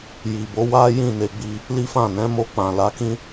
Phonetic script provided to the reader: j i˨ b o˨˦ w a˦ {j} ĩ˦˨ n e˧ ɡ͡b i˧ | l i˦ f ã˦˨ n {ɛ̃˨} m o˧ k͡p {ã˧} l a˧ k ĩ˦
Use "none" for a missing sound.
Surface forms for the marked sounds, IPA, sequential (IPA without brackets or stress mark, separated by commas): j, ɛ̃˨˦, ã˨